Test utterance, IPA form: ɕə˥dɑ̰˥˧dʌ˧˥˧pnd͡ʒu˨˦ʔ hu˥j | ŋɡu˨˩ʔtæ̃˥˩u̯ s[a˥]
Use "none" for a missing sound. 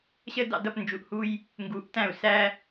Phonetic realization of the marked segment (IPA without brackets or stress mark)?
æ˥